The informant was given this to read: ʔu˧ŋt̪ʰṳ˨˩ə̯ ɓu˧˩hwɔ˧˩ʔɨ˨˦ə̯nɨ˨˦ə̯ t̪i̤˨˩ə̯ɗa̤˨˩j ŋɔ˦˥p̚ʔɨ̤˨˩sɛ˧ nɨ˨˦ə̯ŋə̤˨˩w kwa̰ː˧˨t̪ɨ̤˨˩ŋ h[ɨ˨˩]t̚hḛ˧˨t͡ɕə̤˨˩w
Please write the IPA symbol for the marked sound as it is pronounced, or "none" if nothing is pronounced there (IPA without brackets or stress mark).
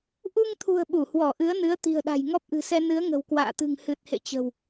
ɨ˨˩